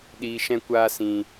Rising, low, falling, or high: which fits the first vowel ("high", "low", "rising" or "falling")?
low